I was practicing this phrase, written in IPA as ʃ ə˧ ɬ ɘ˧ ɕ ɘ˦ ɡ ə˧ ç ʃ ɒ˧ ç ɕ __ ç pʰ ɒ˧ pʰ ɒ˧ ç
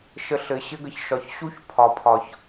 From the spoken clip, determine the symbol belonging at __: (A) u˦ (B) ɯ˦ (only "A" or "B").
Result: A